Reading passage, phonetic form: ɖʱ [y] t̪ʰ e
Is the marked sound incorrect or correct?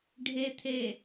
incorrect